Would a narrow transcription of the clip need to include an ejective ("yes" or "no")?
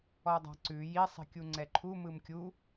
no